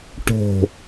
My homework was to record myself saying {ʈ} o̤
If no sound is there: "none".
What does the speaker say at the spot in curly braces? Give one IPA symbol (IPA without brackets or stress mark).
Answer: ʈ